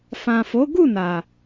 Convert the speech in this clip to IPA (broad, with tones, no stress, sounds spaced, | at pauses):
f ã˨ f o˨˦ ɡ u˦˨ n a˨